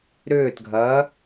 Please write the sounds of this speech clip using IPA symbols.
ɾ ʏː t ɡʱ ɐː

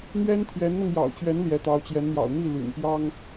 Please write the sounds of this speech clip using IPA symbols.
n̪ ɥ ɛ˥ n t̪ʰ j ɛ˧˥ n n̪ ɤ˧ ŋ j ɑ̰˨˩ ʊ̯ t͡ɕ ɥ ɛ˧˥ n l j ɛ˧˥ t̪ ɑ˧˥ ʊ̯ t͡ɕ j ɛ˧˥ n n̪ j ɑ̰˨˩ ʊ̯ n̪ i˥˩ l y̰˨˩ n p j ɑ˥ ŋ

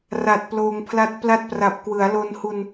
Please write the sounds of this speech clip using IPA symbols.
r a˨˩ t̚ p l oː˧ ŋ pʰ l a˦˥ t̚ p l a˦˥ t̚ p r a˨˩ p̚ k w ɯ˩˦ a̯ l o˧ n h u˧ n

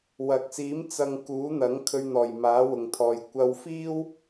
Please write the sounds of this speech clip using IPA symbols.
w ɐ˨ k̚ s iː˨˥ m t͡s ɐ˨ ŋ k uː˨˥ n̪ ɐ˨˥ ŋ kʰ ɵ˧ ɥ n̪ ɔː˨˩ j m aː˨˥ w ʊ˨ ŋ t̪ʰ ɔː˨ j kʷ ɐ˧ w f iː˥ w

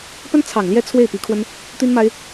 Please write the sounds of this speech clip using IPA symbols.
p ə˥ n t͡sʰ ɑ˨˩ ŋ l j ɛ˥˧ t͡sʰ w e˥˩ ɪ̯ p i˧˥ kʰ w ə˥ n | t̪ i˥ n m a˥ ɪ̯

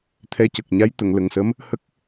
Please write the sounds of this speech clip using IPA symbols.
t̪ʰ ɛ˧˥ c ə˨˩ k̚ ɲ a˧˥ j t̪ ə˨˩˨ ŋ l ə˨˩ ŋ s ə˧˥ m | h ə˦˥ k̚

